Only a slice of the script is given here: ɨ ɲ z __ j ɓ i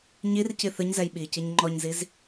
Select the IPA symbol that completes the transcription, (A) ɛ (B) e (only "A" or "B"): A